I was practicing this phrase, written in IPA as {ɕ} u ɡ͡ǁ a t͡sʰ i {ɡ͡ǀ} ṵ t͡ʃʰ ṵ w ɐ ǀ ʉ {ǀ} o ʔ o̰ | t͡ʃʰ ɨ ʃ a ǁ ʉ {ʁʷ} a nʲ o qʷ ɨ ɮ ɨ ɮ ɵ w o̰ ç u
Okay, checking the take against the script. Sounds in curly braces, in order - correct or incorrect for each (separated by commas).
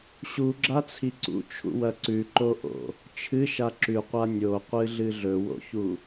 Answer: correct, incorrect, incorrect, incorrect